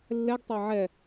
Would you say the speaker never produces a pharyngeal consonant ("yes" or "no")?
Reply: no